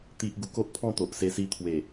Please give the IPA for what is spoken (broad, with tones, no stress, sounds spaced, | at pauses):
t̪ i˦ ʔ ɡ u˧ k o˦ ʔ pʰ ɔ̃˥˧ t̪ o˨ ʔ s e˧ s i˧ t̪ʰ w e˨˩